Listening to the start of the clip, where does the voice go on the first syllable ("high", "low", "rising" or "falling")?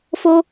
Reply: high